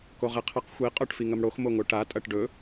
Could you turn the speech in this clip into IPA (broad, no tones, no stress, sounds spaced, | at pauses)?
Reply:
k o ʁ e qʰ ɐ q xʷ i qʼ ɵ ʈ f i ŋ ɐ m ɽ o x m o ŋ o ʈ a tʼ ɐ ʈ ɖ ɵ